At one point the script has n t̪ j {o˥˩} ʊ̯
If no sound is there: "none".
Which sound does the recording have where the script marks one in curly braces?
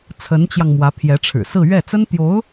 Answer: o˧˥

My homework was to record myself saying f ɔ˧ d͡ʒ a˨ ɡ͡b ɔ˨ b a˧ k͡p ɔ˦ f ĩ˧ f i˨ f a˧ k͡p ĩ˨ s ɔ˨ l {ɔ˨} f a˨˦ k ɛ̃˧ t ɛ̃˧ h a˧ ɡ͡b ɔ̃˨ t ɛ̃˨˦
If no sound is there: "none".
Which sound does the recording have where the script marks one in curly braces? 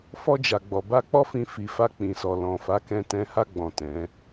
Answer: ɔ̃˨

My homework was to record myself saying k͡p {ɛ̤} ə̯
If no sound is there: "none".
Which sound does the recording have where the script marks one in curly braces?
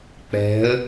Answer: ɛ̤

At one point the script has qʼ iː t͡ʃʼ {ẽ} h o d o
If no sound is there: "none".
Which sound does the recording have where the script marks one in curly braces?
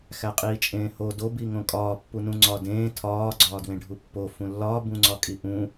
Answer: ẽː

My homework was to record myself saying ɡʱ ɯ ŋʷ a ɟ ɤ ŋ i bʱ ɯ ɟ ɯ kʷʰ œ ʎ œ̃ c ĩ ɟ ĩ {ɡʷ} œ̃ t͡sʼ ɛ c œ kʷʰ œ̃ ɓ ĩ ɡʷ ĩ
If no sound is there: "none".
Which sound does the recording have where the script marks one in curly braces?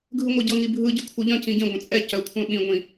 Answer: ɡʷ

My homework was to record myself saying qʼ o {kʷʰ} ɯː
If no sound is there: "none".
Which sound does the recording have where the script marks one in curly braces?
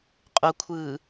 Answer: kʷʰ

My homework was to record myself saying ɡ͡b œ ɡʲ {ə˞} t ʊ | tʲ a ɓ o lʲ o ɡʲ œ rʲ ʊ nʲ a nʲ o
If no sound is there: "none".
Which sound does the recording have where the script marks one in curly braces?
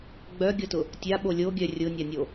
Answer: ɤ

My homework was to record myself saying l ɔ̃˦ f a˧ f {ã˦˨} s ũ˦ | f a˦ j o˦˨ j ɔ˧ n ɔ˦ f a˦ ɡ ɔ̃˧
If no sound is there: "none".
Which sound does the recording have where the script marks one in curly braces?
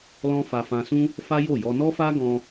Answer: ã˧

